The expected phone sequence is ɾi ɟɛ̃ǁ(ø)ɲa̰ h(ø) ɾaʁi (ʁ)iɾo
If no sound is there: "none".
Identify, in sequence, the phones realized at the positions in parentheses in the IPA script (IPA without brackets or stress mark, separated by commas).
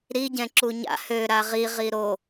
u, ø, ʁ